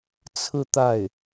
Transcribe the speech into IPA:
t͡sʰɹ̩˥˧ t̪a˥˩ɪ̯

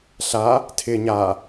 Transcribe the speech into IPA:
ɬa | tʰɪ ɲa

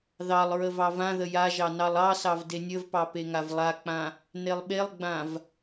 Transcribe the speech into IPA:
ðɑlˠ ɹəvɑvãðə jaʒɑ nɑlˠɑsɑv denʲəvpɑ peŋavlˠak͡pã | nelˠɓelˠɡ͡bãv

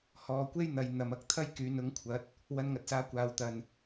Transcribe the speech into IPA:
hɔː˨kʷe˥j n̪ɐ˨˧j n̪ɐ˨mɐ˧k̚ t̪ʰɐ˥jkyː˨nʊ˨˥ŋ kʷʰɐ˨˥t̚ | wɐ˧nŋɐ˨t̚saː˧ kʷaː˨wt̪ɐ˨n

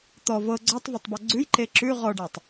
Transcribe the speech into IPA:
t̪ɔ vɤ ɡ͡ǀɔtˤvɔtˤbɔ ɡ͡ǀʉjǃe ǁʉ ʁɔɖatˤ

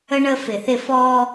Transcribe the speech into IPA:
ə˦ɳə˦ fɪ˨θɪ˦˨ fɔː˦

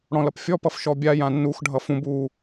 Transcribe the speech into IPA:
ɽɔ̃lʌpfʲɔpʌf ʃɔbʲajã nːuxɖʱʌ fũb u

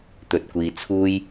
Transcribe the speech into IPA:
t̪ɵ˧t̚kʷiː˧t͡sʰuː˥j

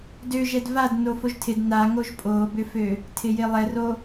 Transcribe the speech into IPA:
døʒɛd vad nofoʒtʰɪd naŋoʒ pʼobʏfø | tʰɪjɪlˠɛro

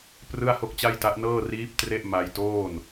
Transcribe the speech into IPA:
prɯ˥˩a̯ho˥˩k̚t͡ɕa˥˩jta˦˥ʔ nɤː˥˩riː˦˥p̚ tre˥˩ʔma˧jtoː˥˩n

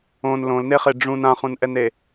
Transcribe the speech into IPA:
õn lõlneχe ɖ͡ʐũn ãχũnʔɛne

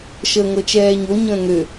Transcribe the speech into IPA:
ʃəːŋɤt͡ʃɛːɲo ɲə̃ːŋø

